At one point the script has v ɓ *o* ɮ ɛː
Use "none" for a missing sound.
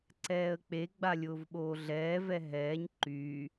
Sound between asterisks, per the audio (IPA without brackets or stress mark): oː